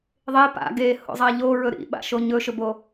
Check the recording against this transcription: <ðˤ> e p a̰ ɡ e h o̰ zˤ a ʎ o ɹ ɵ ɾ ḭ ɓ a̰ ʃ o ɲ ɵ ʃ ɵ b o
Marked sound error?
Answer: no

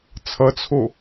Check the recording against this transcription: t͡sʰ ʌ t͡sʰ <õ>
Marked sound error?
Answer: yes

